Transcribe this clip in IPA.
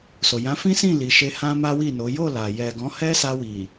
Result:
s o˨ j ã˨˦ f ĩ˦ s ĩ˦˨ l i˨ ʃ e˧ h ã˦ m a˦ w i˦˨ n o˨˦ j o˦˨ l a˨ j ɛ˨ ɡ ɔ̃˨˦ h ɛ˦ s a˧ w i˨

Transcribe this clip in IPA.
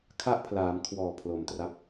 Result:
kʰ a˥˩ ʔ pʰ l aː˩˦ m kʰ w ɔː˨˩ pʰ l o˨˩ m t r a˦˥ p̚

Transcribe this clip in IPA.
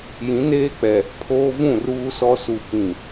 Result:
j ĩ˨˦ n eː˦ k͡p ɛ˨ | pʰ oː˦ v ũ˦˨ r uː˦ s ɔ˦ s u˨ p ĩ˨

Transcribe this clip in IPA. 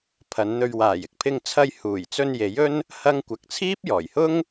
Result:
pʰ ɐ˨˧ n n̪ ɵ˧ ɥ w aː˨˩ j ɪ˨ k̚ pʰ ɪ˧ ŋ t͡sʰ ɐ˧ j h uː˨˩ j t͡s ɵ˧ n j e˨˥ j ɵ˥ n | h ɐ˥ ŋ kʷ ɐ˧ k̚ t͡sʰ iː˥ p̚ j ɔː˨˩ j h ʊ˥ ŋ

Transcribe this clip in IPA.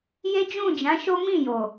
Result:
j e˦ d͡ʒ ũ˦˨ d͡ʒ ã˨˦ ʃ o˦ m ĩ˦˨ j o˨

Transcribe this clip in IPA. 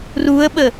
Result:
r u ə̯ ɓ ə

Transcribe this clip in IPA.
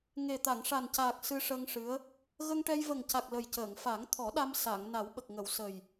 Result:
ŋ e˨˩ t̪ a˨˩˨ ŋ ʂ a˨˩ n c aː˨˩ k̚ s ɨ˧ ʂ ə˧ ŋ ʂ ɨ˧˥ ə̯ | ɣ ə˧ ŋ ʈ ɛ˧ j v ə˨˩ ŋ c a˨˩ k̚ l ə˨˩ j c əː˨˩˨ ŋ f a˨˩˦ ŋ t̪ʰ ɔ˨˩˦ ɗ a˧ m s a˨˩˨ ŋ n a˨˩˦ w ɓ ə˨˩ k̚ ŋ ə˨˩˨ w s ə˨˩ j

